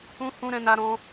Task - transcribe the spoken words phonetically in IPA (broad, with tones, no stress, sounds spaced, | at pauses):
ũ˦ h ũ˦ ɾ ɛ̃˦ n a˦ ɾ ɔ̃˦